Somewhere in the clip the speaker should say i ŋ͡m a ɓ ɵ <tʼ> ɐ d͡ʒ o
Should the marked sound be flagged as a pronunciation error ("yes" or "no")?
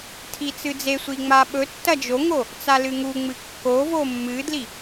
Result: yes